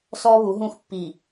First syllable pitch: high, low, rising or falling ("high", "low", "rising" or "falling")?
high